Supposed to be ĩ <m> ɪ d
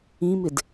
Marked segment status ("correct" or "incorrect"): correct